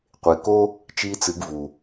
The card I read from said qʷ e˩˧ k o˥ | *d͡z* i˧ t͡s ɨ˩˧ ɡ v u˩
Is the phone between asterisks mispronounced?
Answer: yes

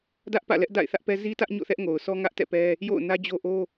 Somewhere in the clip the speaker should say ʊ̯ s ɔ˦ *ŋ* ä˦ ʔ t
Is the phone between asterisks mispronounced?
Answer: no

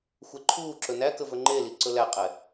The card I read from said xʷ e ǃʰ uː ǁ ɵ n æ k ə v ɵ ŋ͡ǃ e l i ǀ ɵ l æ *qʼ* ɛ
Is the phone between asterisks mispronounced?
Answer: no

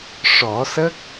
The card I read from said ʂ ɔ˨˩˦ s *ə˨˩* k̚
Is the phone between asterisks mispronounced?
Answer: yes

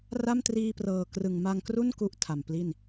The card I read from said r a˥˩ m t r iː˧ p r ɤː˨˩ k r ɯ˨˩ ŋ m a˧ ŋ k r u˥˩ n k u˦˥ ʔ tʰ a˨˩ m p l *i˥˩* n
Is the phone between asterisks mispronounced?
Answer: no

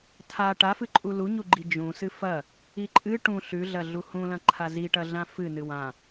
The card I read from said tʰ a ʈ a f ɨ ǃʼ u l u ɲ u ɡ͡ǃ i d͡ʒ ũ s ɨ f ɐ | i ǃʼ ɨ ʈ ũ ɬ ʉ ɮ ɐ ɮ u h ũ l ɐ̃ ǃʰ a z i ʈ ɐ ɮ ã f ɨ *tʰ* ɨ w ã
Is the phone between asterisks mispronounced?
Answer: yes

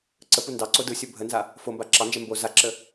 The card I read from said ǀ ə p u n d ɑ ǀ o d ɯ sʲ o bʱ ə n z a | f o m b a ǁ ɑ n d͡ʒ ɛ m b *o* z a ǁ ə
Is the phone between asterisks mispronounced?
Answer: no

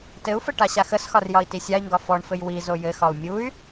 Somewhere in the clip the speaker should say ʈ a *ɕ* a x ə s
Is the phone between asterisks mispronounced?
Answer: no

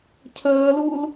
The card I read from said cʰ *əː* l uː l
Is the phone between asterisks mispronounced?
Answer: no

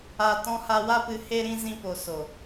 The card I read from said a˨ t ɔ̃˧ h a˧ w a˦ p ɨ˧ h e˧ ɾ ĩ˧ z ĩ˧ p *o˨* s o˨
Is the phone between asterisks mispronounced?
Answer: no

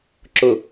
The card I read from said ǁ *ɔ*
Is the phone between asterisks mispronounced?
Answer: yes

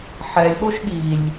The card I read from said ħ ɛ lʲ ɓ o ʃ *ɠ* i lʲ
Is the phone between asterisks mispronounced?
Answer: no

